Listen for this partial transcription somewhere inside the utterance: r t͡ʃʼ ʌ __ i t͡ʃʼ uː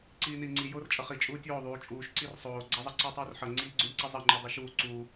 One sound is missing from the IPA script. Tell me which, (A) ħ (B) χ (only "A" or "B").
B